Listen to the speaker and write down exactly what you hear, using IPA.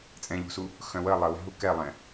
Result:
t͡sʼ ɛ̃ ʎ ṳ s u | x œ̃ w ə lˠ ə w ɛ̤ ɦ u k ɛ lˠ ɛ̃

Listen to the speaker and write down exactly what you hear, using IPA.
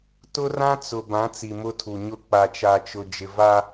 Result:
t ʊ˦ r ã˦ t͡s ʊ˨ b ã˨˦ t͡s i˨ m ʊ˦ tʰ u˨ ɲ ʊ˦ k͡p a˨ t͡ʃ a˨ t͡ʃ ʊ˨ d͡ʒ ɪ˨ v a˦

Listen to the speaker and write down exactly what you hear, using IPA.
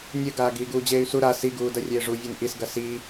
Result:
nʲ ɘ ɡ aː ɡ iː ɡ uː d͡ʑ eː y̯ s u ɾ a s i ɡ uː d ɐ rʲ eː ʐ u vʲ e n ʔ i s ɡ ɐ s iː

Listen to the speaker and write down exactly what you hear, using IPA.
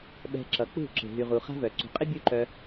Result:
ɓ ɛ̤˧ ǁ ʌ˨˦ k͡p ṳ˦˨ ǁ e̤˨ ɦ y˨ ʁ u˨ χ a̤˦ v œ˨ ǀ ṳ˨ qʼ ɪ˦ bʲ u˦ ǃ œ˧

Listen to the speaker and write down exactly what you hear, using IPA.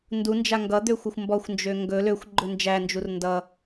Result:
n d u n d͡ʒ a ŋ ɡ ʌ d̪ ø xʷ ɵ xʷ m b ɔ xʷ n d͡ʒ ø ŋ ɡ ɵ l ø xʷ ɡ͡ǃ ɵ n d͡ʒ æ n d͡ʒ u r n d ʌ

